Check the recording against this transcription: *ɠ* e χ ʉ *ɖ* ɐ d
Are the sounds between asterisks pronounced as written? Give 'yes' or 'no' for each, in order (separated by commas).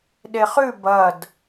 no, no